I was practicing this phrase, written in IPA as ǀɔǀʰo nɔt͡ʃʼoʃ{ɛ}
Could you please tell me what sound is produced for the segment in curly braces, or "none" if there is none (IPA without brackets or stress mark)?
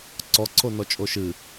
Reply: ɨ